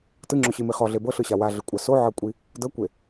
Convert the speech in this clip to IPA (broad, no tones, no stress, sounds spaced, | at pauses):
t ɯ ŋ͡ǁ o ɕ i m i χ ɔ ɮ e b ɤ ɬ ɯ ɕ a w a ɮ ɯ kʷʼ a s o ʕ ɤ kʷʼ i | d ɤ kʷ e